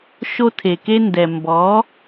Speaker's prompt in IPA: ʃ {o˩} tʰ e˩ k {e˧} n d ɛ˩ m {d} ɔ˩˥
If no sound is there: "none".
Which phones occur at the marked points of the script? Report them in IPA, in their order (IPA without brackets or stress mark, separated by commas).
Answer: o˧, e˧, b